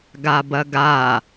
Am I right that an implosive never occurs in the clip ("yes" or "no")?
yes